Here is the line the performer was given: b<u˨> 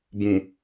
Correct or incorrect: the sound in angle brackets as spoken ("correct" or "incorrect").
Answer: incorrect